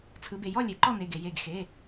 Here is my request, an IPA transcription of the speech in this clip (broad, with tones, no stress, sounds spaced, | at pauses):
t͡sʰ ɯ˩˧ b e˩ j ɔ˥˨ lʲ e˩˧ ǃ ɔ˥˨ n e˩˧˩ ɡ e˩ j e˧˩ ɡ x e˩˧˩